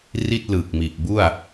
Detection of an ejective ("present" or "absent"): absent